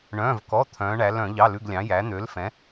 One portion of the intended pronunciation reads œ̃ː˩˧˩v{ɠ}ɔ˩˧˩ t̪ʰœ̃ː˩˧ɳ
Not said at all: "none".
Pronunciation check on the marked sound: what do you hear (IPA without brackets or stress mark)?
k